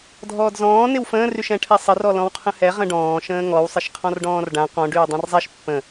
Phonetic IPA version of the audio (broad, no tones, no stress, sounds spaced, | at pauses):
dʱ ɔː d z ɔ̃ː n ɪ w f ə̃ː r y ʃ ɛ̃ ʈʰ ɛ sˤ ə r ɔ l ɔ̃ w qʰ ə̃ h ɛ ʁ ə̃ ɖ ɔ̃ː ʃ ə̃ː ŋ ɔ w sˤ ɪ ʃ qʰ ɔ̃ r ɖ ɔ̃ː r ɖ ã q ɔ̃ ɖ yː dˤ ã r zˤ ɛ ʃ pː ə̃